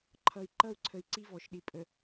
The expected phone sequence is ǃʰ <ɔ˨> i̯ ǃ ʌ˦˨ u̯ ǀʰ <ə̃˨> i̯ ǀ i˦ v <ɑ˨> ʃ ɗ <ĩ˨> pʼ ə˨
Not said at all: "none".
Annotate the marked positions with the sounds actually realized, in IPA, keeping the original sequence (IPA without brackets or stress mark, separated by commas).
ʌ˨, ə˨, ɔ˨, i˨